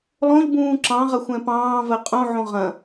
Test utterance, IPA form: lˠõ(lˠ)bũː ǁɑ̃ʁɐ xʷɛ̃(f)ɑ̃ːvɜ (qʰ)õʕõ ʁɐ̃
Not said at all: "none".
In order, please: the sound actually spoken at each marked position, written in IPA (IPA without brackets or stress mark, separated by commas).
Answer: ʎ, p, qʼ